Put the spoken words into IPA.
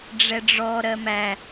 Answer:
ɖ͡ʐ ɛ ɖ͡ʐ ɔ ɾ ɜ m æ

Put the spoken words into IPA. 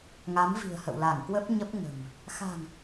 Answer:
ŋ a˨˦ m v i̤˨˩ ə̯ h ə̰˧˨ w l a˧˩ ŋ k w ə˦˥ p̚ ɲ ə˦˥ p̚ ŋ ə̤˨˩ m | x a̤˨˩ ŋ

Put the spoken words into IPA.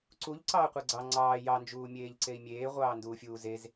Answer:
ǀ u ʎ ǀ ɑː qʷ e ɡ͡ǀ ɑ ŋ͡ǀ ɑː j ɑ n d͡ʒ uː mʲ eː ʎ ǀ e i̯ mʲ eː ʁʷ ɑː n d uː fʲ uː z e z

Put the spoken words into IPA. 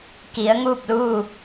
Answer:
k i˩˧ ə̯ ŋ uː˥˨ p̚ l uː˥˨

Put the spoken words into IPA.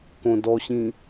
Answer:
k õ d ɔ ɕ ĩ

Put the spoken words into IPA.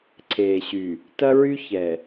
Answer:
ǀʰ eː˨ ɕ y˨ | t ɐ˦ ɹ y˦ ç ɛ˨

